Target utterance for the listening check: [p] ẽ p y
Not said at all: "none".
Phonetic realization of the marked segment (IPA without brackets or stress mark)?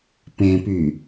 p